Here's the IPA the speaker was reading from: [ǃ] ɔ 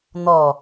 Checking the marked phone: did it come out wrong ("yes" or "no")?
yes